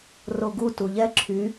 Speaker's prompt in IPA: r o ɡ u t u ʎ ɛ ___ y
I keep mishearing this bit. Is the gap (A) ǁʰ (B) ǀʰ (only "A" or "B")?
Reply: A